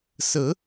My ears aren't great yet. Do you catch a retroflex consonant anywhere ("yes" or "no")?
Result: no